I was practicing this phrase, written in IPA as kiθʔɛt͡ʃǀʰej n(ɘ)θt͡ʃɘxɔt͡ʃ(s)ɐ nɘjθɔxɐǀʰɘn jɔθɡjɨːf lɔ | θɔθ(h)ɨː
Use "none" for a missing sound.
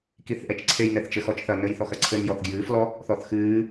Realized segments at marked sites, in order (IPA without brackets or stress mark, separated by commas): ɛ, θ, x